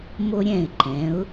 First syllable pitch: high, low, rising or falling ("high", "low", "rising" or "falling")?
high